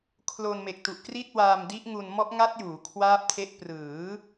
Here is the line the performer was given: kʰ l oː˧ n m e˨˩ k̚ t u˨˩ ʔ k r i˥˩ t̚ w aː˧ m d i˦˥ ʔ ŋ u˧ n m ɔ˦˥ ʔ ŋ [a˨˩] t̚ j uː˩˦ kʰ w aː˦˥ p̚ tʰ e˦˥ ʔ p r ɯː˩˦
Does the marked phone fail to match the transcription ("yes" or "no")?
yes